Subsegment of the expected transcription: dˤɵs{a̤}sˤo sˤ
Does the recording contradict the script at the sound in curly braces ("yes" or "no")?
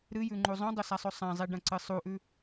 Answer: yes